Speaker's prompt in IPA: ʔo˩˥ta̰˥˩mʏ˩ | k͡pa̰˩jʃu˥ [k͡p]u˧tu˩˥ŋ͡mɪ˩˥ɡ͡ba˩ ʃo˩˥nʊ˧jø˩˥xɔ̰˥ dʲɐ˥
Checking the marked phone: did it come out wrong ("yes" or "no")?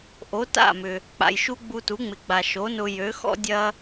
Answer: yes